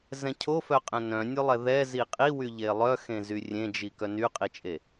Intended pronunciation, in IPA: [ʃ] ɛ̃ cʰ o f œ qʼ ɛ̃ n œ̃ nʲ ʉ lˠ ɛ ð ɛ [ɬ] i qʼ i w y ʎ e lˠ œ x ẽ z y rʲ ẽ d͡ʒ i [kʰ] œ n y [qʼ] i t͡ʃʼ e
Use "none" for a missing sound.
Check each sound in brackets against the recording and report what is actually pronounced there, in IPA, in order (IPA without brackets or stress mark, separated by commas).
z, z, k, qʼ